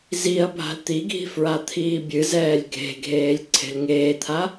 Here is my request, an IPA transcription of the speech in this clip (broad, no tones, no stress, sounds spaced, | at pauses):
z i ɐ̯ bʱ a̤ l t̪ i ɡʱ i̤ f ɹ a t̪ʰ iː bʲ ɨ z ɛː lʲ ɡʱ e̤ ɡʱ eː lʲ ǀʰ e̤ l ŋ eː t̪ʰ a